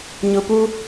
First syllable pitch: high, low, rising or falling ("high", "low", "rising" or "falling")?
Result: low